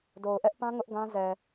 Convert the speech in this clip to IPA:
d o˨ ʊ̯ ʔ ɛ˦ ʔ p ã˦ ŋ ʊ˦ ʔ ɡ ã˦ z ɛ˨

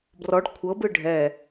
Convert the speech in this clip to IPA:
b r ɔ ɖ kʷʰ ɤ b ɯ ɖʱ ɛ

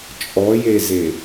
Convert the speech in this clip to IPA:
t͡ʃʼ ɔ j e z e

